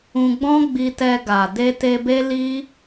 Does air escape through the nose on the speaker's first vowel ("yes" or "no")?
yes